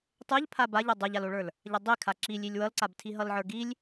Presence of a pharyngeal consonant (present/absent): present